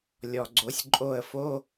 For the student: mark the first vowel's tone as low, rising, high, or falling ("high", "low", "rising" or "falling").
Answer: low